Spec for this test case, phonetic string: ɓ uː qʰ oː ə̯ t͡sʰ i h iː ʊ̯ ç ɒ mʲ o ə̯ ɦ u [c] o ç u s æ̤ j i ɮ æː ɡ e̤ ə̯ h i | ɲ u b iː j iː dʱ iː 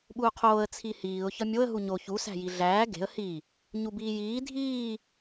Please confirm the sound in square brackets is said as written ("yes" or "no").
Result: no